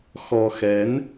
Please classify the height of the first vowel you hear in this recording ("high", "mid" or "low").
mid